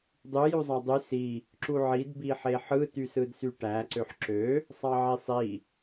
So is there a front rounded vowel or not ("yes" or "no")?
yes